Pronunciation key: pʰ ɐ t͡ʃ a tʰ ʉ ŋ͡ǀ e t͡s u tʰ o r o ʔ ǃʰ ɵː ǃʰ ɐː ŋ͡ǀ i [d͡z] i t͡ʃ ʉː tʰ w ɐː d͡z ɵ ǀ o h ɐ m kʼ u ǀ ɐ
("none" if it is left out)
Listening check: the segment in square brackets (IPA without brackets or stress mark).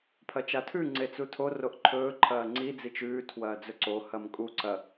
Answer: d͡z